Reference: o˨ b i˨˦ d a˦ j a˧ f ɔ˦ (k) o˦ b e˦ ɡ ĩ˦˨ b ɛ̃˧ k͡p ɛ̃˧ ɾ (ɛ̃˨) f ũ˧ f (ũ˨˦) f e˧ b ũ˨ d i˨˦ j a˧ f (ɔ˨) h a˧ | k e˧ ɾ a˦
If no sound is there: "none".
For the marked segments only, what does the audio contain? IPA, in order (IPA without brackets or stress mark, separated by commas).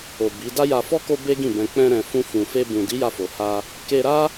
k, ɛ̃˨, ũ˨, o˨